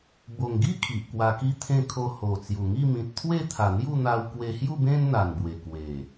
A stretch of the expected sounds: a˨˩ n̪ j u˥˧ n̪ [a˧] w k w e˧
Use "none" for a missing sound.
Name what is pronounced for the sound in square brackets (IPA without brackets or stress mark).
a˧